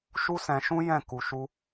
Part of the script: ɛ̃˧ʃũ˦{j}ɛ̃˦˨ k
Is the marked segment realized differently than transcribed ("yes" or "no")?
no